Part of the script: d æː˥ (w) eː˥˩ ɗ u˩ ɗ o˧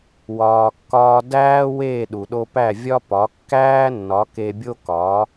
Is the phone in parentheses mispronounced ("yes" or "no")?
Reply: no